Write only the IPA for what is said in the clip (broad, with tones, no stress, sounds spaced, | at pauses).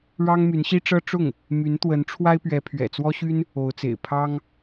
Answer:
ɻ ɑ˥ ŋ m y˧˥ n ɕ i˥ ʈ͡ʂ ɤ˥ ʈ͡ʂ ʊ˥˩ ŋ | m y˧˥ n t̪ w ə˧˥ n ʈ͡ʂʰ w a˥ ɪ̯ p ɥ ɛ˧˥ pʰ ɥ ɛ̰˨˩ t͡s w ɔ˥ ɕ y˥ n | o˧˥ ʊ̯ t͡s ḛ˨˩ ɪ̯ pʰ ɑ˥ ŋ